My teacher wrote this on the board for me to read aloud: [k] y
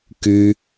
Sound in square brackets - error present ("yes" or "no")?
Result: no